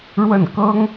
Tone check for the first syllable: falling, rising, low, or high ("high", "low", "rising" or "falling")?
falling